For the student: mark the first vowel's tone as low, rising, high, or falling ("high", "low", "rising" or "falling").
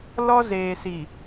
high